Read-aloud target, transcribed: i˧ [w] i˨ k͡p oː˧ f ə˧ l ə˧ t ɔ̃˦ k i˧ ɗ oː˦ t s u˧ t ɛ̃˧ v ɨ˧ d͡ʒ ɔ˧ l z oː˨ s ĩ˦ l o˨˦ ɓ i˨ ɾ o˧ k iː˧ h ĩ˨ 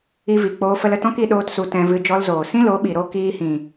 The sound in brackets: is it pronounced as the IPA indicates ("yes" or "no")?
no